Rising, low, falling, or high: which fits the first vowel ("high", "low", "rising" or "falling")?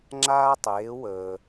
high